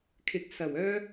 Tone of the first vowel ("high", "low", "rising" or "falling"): rising